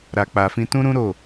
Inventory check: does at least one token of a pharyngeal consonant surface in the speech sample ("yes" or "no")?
no